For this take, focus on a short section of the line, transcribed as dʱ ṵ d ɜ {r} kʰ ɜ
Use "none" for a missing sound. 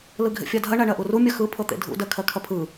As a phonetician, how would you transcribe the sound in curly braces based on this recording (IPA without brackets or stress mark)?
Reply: none